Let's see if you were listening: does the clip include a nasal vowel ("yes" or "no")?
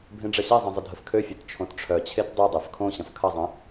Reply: yes